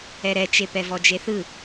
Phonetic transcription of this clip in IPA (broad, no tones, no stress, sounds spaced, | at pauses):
ɛ ɾ ɛ t͡ʃ e p ɛ v ɔ d͡ʒ e θ ɯ